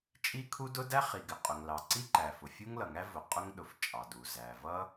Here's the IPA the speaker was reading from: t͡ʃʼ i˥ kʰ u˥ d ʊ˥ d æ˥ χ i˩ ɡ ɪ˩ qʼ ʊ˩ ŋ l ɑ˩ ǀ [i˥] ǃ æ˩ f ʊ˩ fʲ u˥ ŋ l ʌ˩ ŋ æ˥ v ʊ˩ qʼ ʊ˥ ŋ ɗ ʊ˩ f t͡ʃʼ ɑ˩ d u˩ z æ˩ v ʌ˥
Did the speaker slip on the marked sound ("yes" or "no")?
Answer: no